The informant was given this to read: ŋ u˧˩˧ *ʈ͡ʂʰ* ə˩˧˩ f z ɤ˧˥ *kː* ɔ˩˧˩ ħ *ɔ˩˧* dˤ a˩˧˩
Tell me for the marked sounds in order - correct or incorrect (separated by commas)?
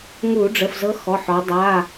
incorrect, incorrect, correct